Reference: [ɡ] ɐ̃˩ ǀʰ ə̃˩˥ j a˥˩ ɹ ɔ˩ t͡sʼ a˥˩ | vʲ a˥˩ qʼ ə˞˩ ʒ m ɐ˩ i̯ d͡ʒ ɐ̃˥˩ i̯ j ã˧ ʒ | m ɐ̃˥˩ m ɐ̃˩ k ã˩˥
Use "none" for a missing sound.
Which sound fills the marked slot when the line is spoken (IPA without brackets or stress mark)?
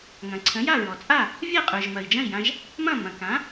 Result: ŋ